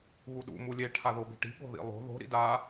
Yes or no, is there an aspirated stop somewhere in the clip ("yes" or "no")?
yes